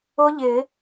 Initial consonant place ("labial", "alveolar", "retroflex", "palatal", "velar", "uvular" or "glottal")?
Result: palatal